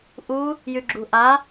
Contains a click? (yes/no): yes